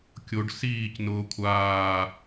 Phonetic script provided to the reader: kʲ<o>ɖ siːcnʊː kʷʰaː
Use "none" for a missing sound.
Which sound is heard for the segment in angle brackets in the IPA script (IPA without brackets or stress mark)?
o